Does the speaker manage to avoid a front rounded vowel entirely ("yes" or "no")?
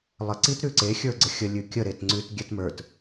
yes